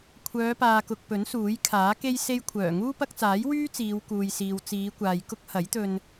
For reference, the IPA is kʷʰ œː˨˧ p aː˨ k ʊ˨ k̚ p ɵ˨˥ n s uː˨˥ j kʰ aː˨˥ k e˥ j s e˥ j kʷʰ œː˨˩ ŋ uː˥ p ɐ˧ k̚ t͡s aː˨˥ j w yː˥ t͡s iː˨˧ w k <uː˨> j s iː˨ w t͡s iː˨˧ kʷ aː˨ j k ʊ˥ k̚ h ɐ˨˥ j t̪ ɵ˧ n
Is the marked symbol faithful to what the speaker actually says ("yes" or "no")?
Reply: yes